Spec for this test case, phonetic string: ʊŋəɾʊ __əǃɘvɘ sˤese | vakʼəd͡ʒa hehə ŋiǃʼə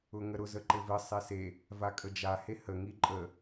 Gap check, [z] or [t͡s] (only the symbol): z